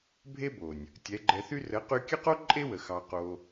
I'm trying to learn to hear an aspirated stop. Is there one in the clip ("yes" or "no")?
no